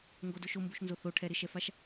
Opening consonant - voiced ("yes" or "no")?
yes